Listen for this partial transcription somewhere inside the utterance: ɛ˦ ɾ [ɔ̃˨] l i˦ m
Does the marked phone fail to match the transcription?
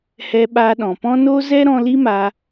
yes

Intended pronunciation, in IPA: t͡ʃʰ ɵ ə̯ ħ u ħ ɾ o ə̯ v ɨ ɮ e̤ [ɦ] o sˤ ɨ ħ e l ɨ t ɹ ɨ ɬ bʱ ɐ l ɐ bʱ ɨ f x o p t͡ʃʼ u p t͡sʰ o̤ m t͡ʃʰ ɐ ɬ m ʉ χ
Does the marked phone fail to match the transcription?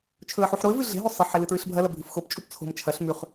no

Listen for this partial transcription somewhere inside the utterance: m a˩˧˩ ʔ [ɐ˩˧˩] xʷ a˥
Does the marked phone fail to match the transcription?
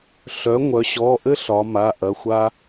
no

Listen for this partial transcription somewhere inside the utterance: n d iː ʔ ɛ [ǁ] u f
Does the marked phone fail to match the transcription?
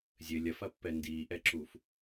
no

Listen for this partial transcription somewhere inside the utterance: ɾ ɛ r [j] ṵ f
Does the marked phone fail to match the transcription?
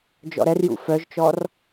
no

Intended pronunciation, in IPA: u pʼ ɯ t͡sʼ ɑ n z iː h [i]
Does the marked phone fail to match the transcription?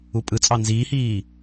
yes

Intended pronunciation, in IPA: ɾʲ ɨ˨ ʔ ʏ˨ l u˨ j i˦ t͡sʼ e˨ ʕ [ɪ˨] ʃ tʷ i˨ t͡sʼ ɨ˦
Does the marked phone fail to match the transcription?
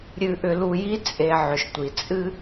yes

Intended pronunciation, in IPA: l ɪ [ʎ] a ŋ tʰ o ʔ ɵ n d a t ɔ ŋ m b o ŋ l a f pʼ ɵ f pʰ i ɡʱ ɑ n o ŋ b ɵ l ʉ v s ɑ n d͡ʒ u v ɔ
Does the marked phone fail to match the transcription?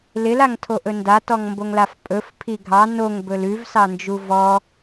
yes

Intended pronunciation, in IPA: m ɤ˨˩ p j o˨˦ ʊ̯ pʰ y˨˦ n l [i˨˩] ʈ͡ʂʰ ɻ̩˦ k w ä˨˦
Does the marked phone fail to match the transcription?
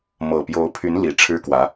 no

